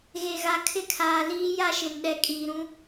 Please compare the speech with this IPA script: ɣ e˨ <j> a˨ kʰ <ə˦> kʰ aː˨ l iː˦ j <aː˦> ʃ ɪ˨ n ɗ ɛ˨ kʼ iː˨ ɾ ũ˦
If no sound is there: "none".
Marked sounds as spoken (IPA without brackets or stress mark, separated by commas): ɣ, ɪ˦, a˦